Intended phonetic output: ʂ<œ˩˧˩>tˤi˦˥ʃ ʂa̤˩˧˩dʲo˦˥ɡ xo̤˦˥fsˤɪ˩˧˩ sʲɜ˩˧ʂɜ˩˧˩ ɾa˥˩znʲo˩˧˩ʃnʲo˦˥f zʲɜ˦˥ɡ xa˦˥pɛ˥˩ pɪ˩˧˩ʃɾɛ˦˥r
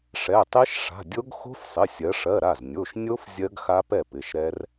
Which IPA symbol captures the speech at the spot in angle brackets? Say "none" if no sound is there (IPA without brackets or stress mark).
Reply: ɛ˩˧˩